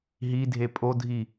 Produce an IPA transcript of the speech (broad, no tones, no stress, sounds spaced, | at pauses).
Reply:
ɦ i dʱ e pʼ o dʱ i